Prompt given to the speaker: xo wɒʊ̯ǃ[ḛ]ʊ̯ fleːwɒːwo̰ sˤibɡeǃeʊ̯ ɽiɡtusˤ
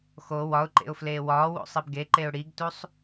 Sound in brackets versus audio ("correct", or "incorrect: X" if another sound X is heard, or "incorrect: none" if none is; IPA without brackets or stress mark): correct